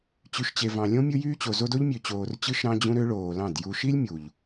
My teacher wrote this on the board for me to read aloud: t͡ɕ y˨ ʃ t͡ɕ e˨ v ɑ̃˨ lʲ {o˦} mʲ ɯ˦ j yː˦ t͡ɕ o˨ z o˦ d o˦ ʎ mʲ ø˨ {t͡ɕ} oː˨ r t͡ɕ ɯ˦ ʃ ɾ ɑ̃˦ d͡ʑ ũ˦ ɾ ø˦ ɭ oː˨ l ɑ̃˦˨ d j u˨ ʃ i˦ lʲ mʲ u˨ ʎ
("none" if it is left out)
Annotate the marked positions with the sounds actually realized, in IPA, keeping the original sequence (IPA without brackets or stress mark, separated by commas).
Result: õ˦, t͡ɕ